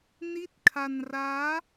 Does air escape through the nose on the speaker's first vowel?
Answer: no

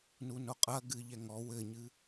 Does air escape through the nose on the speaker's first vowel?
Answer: no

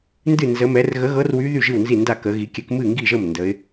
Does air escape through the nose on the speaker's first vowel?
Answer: no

